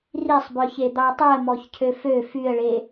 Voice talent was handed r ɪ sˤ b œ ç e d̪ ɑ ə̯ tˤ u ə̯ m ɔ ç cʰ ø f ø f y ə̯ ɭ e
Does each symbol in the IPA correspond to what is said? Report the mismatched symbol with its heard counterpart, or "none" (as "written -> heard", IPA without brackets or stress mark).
ɪ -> i